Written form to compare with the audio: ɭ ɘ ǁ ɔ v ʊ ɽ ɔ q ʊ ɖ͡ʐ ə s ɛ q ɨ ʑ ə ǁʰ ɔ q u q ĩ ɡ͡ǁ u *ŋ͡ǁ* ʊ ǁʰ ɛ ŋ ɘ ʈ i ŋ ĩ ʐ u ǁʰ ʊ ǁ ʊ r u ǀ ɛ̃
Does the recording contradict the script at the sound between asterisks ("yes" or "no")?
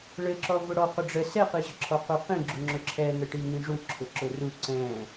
no